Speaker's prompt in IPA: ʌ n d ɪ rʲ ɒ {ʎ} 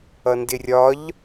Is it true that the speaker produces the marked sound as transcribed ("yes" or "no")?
yes